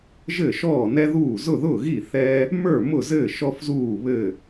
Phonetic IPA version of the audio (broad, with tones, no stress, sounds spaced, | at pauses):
ʒ ɘː˥˨ ʃ ɔː˥˨ n ɛ˥ ð uː˥˨ z ʊ˥˨ ð ʊː˥˨ ɣ i˥˨ θ ɛ˥ | m ə˞˥˨ m ʊ˥˨ z ɘː˥˨ ʃ ɔ˥ f z uː˥˨ β ɘ˥˨